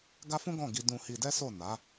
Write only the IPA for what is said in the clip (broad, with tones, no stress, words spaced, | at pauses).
ɡa˦fũ˦ɡɔ̃˦˨ ɡi˧ dũ˧hi˧dɛ˦so˦˨ na˨˦